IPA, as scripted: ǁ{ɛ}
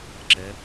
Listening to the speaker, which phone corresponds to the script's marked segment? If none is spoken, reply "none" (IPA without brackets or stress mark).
ɛ